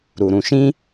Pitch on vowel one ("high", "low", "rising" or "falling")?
low